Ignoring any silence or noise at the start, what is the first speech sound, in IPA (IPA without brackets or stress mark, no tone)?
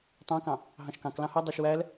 tˤ